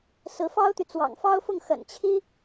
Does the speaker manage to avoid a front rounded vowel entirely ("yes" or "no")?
no